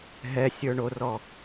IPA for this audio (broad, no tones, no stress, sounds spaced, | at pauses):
ɦ ɛ sʲ ə˞ ɳ o r ɔ